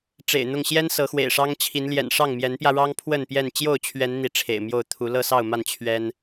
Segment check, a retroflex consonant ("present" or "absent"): present